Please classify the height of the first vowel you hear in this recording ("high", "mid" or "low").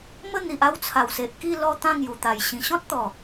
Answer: mid